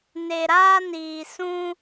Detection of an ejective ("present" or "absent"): absent